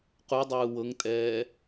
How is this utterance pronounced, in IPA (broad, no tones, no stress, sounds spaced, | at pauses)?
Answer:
q u dˤ ɯː w ɤ ŋ tʼ ɛː